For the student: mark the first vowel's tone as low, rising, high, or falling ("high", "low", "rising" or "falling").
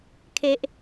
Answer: high